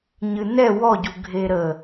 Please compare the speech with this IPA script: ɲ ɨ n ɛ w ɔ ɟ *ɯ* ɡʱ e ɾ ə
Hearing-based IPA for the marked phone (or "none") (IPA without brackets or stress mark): u